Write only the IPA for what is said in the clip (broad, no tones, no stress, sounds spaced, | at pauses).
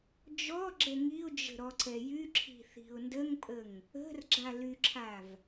d͡ʒ ɔ ɡ͡ǁ ɛ ŋ i ʊ̯ d͡ʒ ə̤ ɾ ɔ ǀ ɛ j y ǁʰ i̤ θ i̤ ʊ̯ n d ə ŋ pʼ ə ŋ | ə̤ r ɡ͡ǁ a l y ǁʰ a v